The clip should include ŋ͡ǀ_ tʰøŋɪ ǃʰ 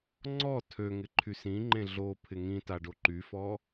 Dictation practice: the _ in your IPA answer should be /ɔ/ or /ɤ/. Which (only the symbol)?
ɔ